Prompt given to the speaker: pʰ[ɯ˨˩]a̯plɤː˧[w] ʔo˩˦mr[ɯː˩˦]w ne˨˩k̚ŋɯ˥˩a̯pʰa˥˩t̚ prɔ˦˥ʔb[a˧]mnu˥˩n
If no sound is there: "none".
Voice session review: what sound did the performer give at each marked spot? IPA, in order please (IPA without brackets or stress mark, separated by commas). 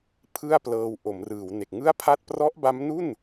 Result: ɯ˥˩, w, ɯː˩˦, a˦˥